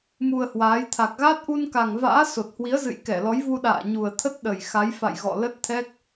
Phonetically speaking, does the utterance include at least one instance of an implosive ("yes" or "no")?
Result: yes